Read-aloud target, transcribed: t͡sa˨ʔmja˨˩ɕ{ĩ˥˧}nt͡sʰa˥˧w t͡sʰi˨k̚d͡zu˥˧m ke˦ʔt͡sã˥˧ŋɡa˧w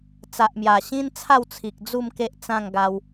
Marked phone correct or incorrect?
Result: incorrect